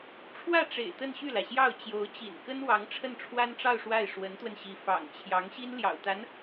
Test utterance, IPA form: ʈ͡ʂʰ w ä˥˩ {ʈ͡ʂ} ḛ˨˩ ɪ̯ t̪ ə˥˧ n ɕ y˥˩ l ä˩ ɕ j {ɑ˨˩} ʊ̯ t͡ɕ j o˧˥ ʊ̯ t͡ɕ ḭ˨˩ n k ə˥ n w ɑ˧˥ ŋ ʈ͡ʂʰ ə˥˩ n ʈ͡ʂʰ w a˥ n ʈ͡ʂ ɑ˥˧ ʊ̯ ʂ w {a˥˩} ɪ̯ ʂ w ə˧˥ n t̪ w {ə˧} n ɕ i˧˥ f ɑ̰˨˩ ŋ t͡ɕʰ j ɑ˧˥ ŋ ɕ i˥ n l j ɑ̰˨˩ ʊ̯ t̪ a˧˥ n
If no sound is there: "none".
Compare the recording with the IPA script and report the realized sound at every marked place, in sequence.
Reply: ʈ͡ʂ, ɑ˥˩, a˥˩, ə˧

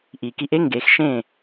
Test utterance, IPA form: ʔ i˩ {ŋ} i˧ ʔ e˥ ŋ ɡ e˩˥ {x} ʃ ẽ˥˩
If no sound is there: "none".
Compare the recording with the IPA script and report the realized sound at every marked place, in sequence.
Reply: k, x

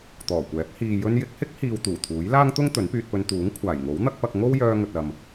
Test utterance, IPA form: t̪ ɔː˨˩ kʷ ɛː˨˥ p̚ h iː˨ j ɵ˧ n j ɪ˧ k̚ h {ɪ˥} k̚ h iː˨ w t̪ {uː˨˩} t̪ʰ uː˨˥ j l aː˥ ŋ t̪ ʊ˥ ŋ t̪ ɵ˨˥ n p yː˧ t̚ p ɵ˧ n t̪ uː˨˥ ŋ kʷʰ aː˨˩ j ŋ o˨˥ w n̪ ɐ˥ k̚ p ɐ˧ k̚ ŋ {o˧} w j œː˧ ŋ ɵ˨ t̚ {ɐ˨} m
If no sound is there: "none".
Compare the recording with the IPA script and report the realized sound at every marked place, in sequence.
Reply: ɪ˥, uː˨˩, o˥, ɐ˨

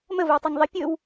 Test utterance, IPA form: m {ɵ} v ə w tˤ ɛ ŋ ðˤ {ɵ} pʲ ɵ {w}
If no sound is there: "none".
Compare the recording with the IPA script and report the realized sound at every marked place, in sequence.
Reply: ə, ə, w

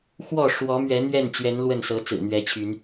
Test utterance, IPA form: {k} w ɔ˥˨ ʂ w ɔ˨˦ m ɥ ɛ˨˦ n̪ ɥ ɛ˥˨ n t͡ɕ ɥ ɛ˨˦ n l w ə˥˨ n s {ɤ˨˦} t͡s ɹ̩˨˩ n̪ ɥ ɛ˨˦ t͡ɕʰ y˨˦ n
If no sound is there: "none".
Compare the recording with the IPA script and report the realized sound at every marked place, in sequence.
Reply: x, ɤ˨˦

